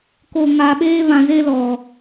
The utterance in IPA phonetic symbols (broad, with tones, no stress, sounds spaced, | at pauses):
k o˨ ŋ aː˨ ɓ eː˦ β ã˨ z e˦ l ɔ˨